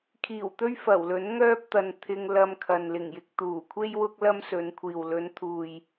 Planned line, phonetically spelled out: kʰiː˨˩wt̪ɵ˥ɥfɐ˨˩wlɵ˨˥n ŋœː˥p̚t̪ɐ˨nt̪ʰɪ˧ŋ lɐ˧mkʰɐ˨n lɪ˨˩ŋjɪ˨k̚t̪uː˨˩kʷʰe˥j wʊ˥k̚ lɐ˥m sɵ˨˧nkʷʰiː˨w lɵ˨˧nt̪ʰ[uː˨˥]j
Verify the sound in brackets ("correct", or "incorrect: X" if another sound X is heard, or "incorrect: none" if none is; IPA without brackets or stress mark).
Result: incorrect: uː˨